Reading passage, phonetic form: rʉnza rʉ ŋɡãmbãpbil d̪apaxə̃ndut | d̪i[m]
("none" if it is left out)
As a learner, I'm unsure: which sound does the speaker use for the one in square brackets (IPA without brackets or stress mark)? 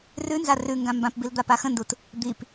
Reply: p